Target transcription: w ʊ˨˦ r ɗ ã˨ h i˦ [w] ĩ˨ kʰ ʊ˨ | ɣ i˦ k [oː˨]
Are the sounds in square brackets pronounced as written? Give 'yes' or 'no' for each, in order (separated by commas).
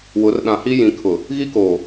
no, yes